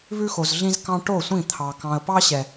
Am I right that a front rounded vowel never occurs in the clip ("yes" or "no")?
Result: yes